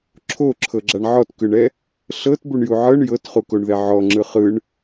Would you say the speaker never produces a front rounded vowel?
yes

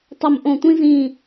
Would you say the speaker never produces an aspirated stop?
yes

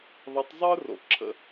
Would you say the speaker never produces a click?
no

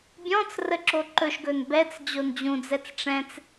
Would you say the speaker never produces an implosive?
yes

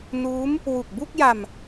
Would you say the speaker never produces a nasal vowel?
yes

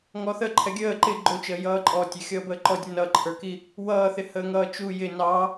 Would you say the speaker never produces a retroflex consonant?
yes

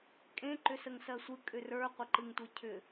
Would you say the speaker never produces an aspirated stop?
no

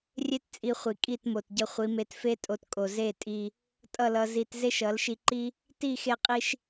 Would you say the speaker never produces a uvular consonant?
no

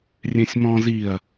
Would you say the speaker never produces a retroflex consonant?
yes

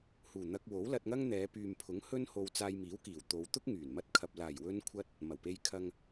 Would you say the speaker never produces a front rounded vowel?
no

